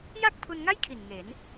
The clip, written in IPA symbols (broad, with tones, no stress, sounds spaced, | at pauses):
j a˥˩ k̚ pʰ u˧ n ŋ a˥˩ j kʰ i˨˩ n ŋ e˩˦ n